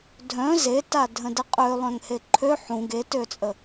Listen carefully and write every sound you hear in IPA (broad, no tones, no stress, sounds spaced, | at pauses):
dʱ œ̃ z e t a dʱ ə̃ d ə qʼ ø lˠ œ̃ ŋ h e ǃʰ ø ħ ũ ɡ e t ø t͡sʼ ə